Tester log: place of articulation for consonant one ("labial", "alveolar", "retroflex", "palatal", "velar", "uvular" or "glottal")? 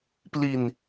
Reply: labial